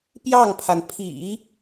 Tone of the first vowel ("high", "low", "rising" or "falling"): falling